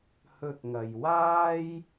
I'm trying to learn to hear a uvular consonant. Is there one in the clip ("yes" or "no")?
no